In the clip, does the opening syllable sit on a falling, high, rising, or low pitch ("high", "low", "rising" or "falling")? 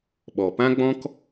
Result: low